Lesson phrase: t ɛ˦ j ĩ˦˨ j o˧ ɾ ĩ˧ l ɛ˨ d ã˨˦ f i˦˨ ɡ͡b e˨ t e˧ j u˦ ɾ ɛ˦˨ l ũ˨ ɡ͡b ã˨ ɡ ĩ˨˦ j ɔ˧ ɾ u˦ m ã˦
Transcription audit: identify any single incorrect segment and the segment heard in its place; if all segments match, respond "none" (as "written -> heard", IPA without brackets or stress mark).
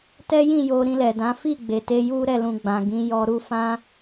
m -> f